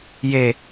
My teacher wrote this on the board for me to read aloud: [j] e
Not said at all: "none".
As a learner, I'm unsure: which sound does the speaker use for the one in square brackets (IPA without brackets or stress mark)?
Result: j